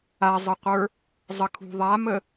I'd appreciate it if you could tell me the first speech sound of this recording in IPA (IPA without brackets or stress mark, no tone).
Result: a